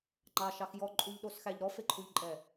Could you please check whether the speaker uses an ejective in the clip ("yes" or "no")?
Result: yes